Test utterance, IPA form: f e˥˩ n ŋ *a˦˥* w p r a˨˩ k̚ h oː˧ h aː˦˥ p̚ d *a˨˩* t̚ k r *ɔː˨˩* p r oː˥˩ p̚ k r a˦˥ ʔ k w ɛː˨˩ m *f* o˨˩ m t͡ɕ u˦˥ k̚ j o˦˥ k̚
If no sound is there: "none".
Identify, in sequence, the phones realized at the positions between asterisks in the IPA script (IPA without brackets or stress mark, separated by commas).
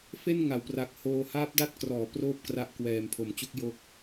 a˩˦, a˦˥, ɔː˩˦, pʰ